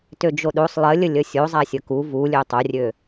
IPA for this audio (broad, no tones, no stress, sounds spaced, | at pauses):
t ø d͡ʒ o ɗ o sˤ lˠ ə lʲ ə lʲ ə sʲ o zˤ a sʲ ə k u v u lʲ ø tˤ o rʲ ø